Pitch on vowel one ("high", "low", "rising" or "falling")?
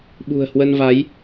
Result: low